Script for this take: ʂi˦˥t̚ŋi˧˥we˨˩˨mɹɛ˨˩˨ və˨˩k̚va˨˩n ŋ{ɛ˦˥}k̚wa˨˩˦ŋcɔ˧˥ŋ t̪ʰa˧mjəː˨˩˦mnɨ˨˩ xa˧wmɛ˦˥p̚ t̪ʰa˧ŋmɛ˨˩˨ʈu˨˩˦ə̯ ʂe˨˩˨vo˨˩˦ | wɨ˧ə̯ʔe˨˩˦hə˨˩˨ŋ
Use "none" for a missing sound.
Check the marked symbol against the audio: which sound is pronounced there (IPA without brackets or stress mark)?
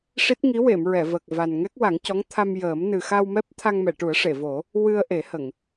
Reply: ɛ˦˥